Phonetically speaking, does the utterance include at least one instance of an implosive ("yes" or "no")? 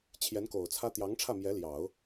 no